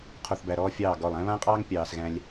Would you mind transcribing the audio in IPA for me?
qʰ o˧ θ b æ˨ ɾ ɔː˦ fʲ ɑː˦˨ ɡ ɔ˦˨ lˠ æ̃˦ β ã˦ qʼ ɑː˦ ŋ pʲ ɑː˧ s ɣ æ̃˦ lʲ

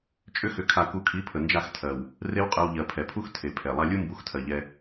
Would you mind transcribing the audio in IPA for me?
t͡ʃʼ ʏ˦ x ʏ˧ kʰ a˧ k u˧ kʰ i˨˦ pʰ ə˨ n d͡ʒ a˦˨ x tʰ ɜ˨ w | r e˦ w qʼ ɜ˧ w ʎ ɜ˨ pʰ ɛ˨ pʰ u˦ x tʰ e˨ pʰ ɛ˨ lˠ a˧ lʲ u˦ m b u˧ x tʰ ɜ˨ ʎ ɛ˧

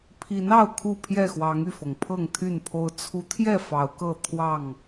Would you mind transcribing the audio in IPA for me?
pʰ i˨˦ n ɑ˥˨ ʊ̯ kʰ u˥˨ pʰ j ɛ˥˨ x w ɑ˨˦ ŋ y˥˨ f ɤ˩ ŋ pʰ ɤ˥˨ ŋ t̪ʰ y˥˨ n pʰ o˦ ʊ̯ t͡sʰ u˨˦ t̪ʰ j ɛ˥˨ f ɑ˨˦ ʊ̯ k ɤ˥˨ t̪ʰ w ɑ˥˨ ŋ

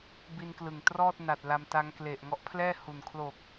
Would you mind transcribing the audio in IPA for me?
b i˧ n k l ɯ˨˩ ŋ t r ɔː˥˩ t̚ n a˨˩ t̚ l a˧ m t a˦˥ ŋ k l e˨˩ ʔ ŋ ɔ˦˥ ʔ pʰ l ɛː˥˩ h u˨˩ n kʰ l o˨˩ k̚

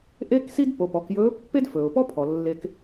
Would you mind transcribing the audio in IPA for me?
ʔ e˥ k s i˥ d p o˩˧ p ɔ˩˧ k j ɵː˧˥ pː e˥ d f ɵː˩ ʊ̯ p ɔ˥ pʰ ɔ˩ lː e˧ k

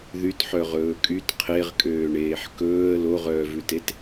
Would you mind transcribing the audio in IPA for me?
ð y t ħ œ ʁ ɵː kʼ y t qʰ e ʁ kʼ øː ɳ eː ħ k ɵː ə̯ l o ʁ œː v ʉ t e t

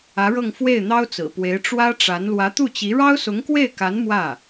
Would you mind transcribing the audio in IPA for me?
ä˧˥ ɻ ɤ˥˧ ŋ f w e˥˩ ɪ̯ n̪ ɑ˥ ʊ̯ t͡s ɹ̩˨˩ p w e˧˥ ɪ̯ ʈ͡ʂ w ä˥ ʈ͡ʂ a˧˥ n l w ä˧˥ t̪ u˥˩ t͡ɕ i˧˥ ɻ ɑ˥ ʊ̯ s ʊ˧˥ ŋ k w e˥˩ ɪ̯ k a˧˥ n m w ä˥˩

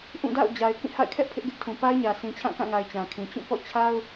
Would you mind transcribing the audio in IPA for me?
ʔ ũ˦˨ d a̰˦˨ ʊ̯ d͡ʑ a˨ ɪ̯ k ĩ˦˨ h a̰˦˨ ɪ̯ kʰ ɛ˦ ʔ pʰ ɪ˦ ʔ ɡ ɪ˦ ʔ tʰ ũ˨ p a˦ ɪ̯ ɲ ä˨ sʰ ĩ˨ t͡ɕʰ ã˦˨ k ã˦˨ ŋ a˨ ɪ̯ t͡ɕ ã˨ kʰ ĩ˨ t͡ɕ ũ˦˨ p ɔ̰˦˨ t͡ɕʰ a˦ ʊ̯

